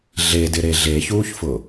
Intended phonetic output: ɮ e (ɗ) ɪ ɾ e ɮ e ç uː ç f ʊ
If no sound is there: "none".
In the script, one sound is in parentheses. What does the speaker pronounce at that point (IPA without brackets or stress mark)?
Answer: d